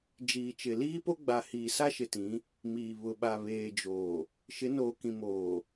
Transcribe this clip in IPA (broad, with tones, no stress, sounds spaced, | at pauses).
d͡ʒ iː˨ t͡ʃ ɪ˨ l iː˦ p o˦ ɡ͡b a˨ h iː˨ s a˦ ʃ ɪ˨ t ĩ˨˦ | m iː˨ β ʊ˨ ɓ a˨ β eː˨ d͡ʒ oː˨ | ʃ ɪ˨˦ n oː˨ k ĩ˨ m oː˨